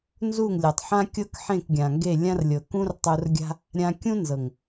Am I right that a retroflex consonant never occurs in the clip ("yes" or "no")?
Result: yes